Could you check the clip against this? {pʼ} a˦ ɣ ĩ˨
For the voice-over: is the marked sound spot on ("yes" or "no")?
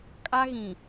no